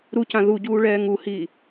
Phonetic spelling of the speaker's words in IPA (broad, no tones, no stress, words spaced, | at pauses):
ɾucã ðuɟuː ɭɛːŋuhiː